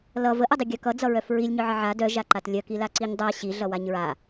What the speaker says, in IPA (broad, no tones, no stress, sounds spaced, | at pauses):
l ʌ v ə ʔ ʌ dˤ i ɡʲ œ k ʌ d͡z ʌ ɹ œ f ɹ i lʲ ɲ œ ʕ ə ʕ a d œ ʒ a ǃ a t lʲ œ k i l a ǀ i ɲ dˤ a ɕ i ɮ ʌ w a ɲ ɹ a